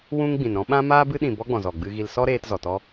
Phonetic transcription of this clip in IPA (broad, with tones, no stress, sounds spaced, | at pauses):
w ũ˦ ŋ ɡ͡b ĩ˨ n ɾ ɔ̃˦ ɓ ã˦ m aː˦ b ɨ˦ ɗ ĩ˨ b ɔ˦ ɡ͡b ɔ̃˨ z ɔ˨ ɡ͡b ɨ˧ ɣ i˧ l s ɔ˦ ɾ eː˧ t z ɔ˨ t ɔ˦